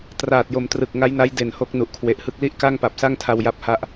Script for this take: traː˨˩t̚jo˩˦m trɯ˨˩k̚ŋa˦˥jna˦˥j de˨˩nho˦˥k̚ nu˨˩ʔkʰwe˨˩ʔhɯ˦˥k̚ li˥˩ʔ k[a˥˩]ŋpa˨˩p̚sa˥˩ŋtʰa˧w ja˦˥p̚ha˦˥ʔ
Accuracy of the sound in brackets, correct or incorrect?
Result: correct